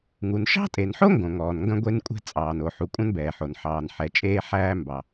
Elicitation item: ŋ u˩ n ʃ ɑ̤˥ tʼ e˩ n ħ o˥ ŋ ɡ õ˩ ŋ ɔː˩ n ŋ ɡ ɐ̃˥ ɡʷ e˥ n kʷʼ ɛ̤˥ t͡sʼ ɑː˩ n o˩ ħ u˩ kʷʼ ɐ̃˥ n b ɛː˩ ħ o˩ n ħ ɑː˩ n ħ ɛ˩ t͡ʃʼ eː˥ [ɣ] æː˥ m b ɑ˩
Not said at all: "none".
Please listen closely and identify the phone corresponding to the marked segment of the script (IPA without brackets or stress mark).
ħ